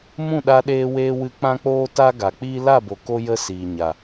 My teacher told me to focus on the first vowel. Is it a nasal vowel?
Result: yes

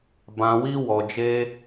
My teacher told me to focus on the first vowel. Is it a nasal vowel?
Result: yes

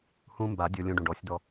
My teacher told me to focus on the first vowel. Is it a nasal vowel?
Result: yes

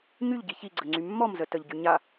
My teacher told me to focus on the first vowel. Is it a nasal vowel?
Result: no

